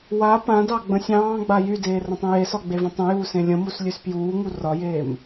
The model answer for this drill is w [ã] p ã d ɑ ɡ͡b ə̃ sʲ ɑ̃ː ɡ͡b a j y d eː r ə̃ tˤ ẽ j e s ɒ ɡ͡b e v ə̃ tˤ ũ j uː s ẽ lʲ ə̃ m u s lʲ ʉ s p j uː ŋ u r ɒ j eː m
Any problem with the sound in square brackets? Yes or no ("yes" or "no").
yes